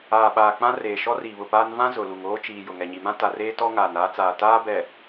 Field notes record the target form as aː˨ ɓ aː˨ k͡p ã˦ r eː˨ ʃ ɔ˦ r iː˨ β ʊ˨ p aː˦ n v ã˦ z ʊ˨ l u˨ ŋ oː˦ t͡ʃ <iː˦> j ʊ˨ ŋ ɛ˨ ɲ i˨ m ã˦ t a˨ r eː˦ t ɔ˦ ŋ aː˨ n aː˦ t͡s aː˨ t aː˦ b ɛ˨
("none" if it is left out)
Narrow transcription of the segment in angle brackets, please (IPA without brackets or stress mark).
iː˨